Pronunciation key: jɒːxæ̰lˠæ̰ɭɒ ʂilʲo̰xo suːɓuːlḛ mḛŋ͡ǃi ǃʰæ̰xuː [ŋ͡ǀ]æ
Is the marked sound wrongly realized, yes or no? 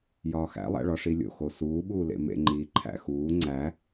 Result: no